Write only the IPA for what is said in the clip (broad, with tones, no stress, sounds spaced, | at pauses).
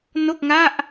n o˥˩ k̚ ŋ a˥˩ ʔ